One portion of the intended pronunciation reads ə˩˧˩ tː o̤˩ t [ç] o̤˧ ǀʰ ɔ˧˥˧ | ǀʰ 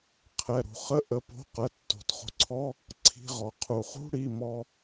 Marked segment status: incorrect: χ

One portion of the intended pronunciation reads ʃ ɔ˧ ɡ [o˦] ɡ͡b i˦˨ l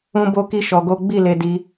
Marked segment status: correct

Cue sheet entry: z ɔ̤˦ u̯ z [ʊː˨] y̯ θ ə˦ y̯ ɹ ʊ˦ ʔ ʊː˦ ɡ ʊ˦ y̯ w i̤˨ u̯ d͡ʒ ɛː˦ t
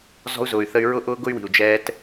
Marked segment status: correct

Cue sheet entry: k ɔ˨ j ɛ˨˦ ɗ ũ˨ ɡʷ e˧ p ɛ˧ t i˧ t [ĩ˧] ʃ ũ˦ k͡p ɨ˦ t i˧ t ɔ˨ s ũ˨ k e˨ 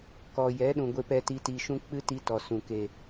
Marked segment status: incorrect: i˧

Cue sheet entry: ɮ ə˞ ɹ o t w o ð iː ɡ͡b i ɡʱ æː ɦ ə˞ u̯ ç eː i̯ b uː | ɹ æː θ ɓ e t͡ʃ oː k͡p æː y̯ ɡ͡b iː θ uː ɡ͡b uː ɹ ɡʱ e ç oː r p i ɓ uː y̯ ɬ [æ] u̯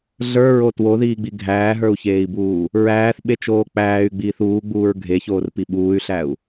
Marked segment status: correct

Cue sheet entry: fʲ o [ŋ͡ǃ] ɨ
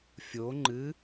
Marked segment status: correct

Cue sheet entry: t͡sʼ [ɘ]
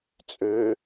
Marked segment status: incorrect: ø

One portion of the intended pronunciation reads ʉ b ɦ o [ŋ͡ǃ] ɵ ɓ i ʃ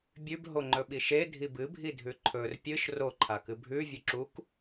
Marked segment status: correct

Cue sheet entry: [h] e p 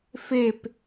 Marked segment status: incorrect: f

